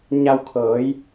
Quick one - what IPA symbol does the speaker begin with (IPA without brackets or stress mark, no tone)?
ɲ